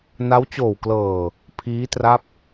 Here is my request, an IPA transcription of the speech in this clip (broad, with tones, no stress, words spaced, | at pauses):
na˦˥wt͡ɕoː˨˩w klɤː˨˩ | pʰiː˦˥tra˦˥p̚